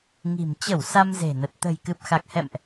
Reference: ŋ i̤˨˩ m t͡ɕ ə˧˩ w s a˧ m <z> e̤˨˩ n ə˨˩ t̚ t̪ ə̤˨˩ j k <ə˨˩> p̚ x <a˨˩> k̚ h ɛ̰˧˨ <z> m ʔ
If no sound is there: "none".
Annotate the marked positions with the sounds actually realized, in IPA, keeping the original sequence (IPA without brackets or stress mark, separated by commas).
z, ɨ˨˩, a˨˩, none